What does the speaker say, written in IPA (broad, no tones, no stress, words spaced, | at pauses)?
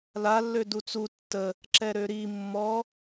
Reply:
lalːø dut͡su tːə | ǁɛɾøɾi mːɔ